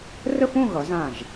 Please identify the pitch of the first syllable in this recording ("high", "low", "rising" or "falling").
falling